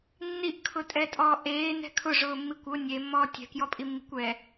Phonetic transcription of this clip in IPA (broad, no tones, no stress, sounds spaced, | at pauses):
nː i ʔ kʰ ʊ tʼ ɛ tʼ ɔː ʔ eː n ɛ̤ kʰ ʊ ʐ ʊː mː i kʷ ʊ nʲ e mː ɔː tʲ ɛ̤ k j ɔ pʼ i mː i̤ kʷ ɛ